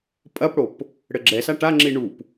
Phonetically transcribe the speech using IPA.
pʼ ɐ p ɽ o p | ɽ ɘ ɡ͡ǁ ɛ s a ʈ a ŋ͡ǁ i ɳ u p

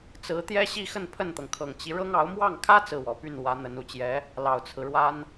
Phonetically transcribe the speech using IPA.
t͡s ɹ̩˧˥ t̪ j ɛ˥ ɕ i˥˧ x ə˥˧ n pʰ ə˥˩ n t̪ ɤ˩ ŋ kʰ ɤ˨˩ ŋ t͡ɕ i˦ ɻ ɤ˥ ŋ ɑ˧˥ ʊ̯ m w ɑ˥˩ ŋ kʰ ä˥ t͡s ɹ̩˥˩ w ɔ˨˩ p y˥˩ n w ä˧˥ n̪ ə˧˥ n u˨˩ t͡ɕ j ɛ˧˥ | l ɑ˨˩ ʊ̯ t͡sʰ ɹ̩˦ ɻ w a˥ n

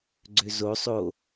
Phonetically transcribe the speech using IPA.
ɡ͡ǀ ø z o sˤ o

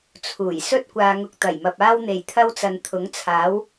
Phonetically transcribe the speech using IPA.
t͡sʰ uː˨˩ j s ɵ˥ t̚ kʷ aː˧ ŋ ʊ˧ k̚ t̪ ɐ˨˩ j m ɐ˨ p̚ aː˥ w n̪ e˨˩ j t̪ʰ ɐ˥ w t͡s ɐ˨ n t̪ʰ ʊ˨˥ ŋ t͡sʰ aː˨˥ w

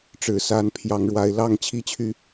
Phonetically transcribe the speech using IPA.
ʈ͡ʂ ɻ̩˨˩ s a˨˦ n pʰ j ɑ˨˦ ŋ ɻ w a˨˦ ɪ̯ l ɑ˥˨ ŋ t͡ɕʰ i˦ t͡ɕʰ y˨˦

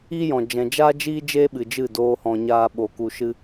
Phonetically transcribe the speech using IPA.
i˦ j ɔ̃˨ d͡ʒ ɛ̃˨ d͡ʒ aː˦ d͡ʒ iː˦ d͡ʒ eː˦ ɓ ɨ˨ d͡ʒ ɨ˦˨ d oː˦ h ɔ̃˧ ɲ aː˦ ɓ o˧ k u˧ ʃ ɨ˦

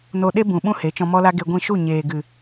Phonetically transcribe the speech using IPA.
n o˧ ɗ e˦ b ũ˨ ɓ ũ˦ h e˨˦ t͡ʃ ɔ̃˧ m ɔ˦ l a˦ ɡ e˧ ɡʷ ĩ˦˨ ʃ u˦˨ ɲ eː˨ ɡ ɨ˨

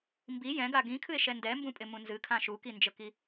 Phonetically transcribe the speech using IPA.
m b i j ɛ̃ ɡ a ɡ ĩ kʰ ɨ e̯ ʃ ɛ n d ɛ m b ũ pʼ ɪ m ũ n z ɨ kʰ ã ʃ u k i n d͡ʒ ə k i

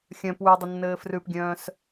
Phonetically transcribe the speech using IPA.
xʲ œ̃ p w ʉ dˤ ə nː ɘː f r ʉ p ɡʲ œ̃ː s

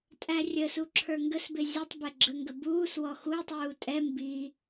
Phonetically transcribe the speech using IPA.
tʼ æ rʲ ə s u ǁʰ ə˞ ŋ ɡ ə s b ɪ zʲ ə tˤ b ɛ ɡ͡ǁ ə ŋ ɡ ə b uː s w ɔ x u tˤ uː tʼ ɛ m b i

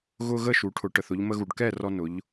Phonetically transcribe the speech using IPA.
ɣ ʊ˧ ɣ ə˥˩ ʃ u˩˧ ʈʰ ʊ˩˧ ʈ ə˩ θ ʊ˧ ʎ m ə˧ ɣ u˩ ɖ k ɛ˥˩ r ɔ˧ n ʊ˩˧ ʎ

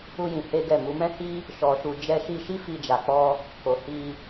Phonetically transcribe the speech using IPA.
u˦ j ĩ˧ h e˦ ɡ ɛ˦˨ m u˨˦ m ɛ̃˦ h i˦ | ʃ ɔ˨ ʃ u˨ d͡ʒ ɛ˧ ʃ i˧ ʃ i˦ f i˧ d͡ʒ a˨ k͡p ɔ˧ | k o˨ h i˧

